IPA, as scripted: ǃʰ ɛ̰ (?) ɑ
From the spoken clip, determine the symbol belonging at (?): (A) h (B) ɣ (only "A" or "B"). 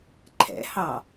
A